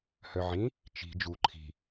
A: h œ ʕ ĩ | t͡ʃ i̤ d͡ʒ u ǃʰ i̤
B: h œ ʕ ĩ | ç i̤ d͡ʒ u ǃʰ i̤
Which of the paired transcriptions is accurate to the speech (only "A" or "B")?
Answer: A